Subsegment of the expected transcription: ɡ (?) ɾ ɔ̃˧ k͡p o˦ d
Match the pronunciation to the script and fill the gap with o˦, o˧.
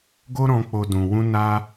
o˦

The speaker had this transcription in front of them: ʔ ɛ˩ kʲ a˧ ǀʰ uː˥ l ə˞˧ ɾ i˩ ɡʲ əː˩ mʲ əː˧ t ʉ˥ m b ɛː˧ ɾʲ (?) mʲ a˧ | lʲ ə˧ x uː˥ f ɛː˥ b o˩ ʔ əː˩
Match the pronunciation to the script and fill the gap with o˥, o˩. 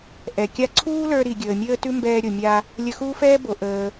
o˩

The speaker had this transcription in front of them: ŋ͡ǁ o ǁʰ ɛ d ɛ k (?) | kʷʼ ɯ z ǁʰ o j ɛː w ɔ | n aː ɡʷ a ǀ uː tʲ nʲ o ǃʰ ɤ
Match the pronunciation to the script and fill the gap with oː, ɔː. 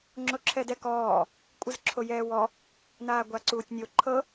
ɔː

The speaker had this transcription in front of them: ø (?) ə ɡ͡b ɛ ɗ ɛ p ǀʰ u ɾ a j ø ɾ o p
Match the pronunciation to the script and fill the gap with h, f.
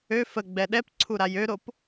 f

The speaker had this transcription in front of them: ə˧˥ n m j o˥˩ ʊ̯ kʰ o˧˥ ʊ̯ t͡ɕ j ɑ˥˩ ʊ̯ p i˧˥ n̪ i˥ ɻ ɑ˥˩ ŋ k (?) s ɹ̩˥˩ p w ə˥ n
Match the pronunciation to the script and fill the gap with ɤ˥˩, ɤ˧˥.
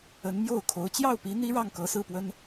ɤ˧˥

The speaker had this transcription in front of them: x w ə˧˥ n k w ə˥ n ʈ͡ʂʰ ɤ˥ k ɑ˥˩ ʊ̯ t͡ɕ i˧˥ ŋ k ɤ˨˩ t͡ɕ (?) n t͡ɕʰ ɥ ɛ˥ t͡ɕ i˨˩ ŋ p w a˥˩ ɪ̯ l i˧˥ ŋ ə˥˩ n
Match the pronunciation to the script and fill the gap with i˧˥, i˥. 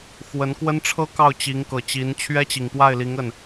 i˧˥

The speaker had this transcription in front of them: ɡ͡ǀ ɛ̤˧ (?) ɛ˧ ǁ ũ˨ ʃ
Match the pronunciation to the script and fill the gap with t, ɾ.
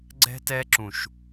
t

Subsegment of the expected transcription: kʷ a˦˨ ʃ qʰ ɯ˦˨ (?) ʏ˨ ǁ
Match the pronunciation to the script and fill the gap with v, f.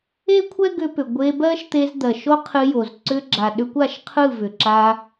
v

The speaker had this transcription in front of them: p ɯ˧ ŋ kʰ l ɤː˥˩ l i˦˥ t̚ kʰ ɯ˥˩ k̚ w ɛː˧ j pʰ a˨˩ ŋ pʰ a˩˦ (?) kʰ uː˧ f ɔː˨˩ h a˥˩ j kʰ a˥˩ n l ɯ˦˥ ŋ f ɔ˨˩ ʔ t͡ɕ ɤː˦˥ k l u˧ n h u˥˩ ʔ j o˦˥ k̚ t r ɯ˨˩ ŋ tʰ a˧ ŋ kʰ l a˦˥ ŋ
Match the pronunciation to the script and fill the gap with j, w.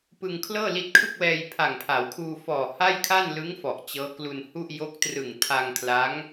w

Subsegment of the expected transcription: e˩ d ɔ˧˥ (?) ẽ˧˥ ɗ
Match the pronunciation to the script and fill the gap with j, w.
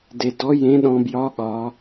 j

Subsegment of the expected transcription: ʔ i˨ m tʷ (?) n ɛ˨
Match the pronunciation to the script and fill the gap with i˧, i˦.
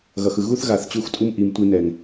i˧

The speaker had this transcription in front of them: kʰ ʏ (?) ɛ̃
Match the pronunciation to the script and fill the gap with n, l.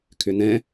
n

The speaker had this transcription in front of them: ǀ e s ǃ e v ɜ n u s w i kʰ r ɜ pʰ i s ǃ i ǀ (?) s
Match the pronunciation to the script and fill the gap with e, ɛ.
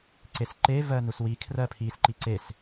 e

